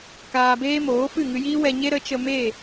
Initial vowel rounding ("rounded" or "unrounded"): unrounded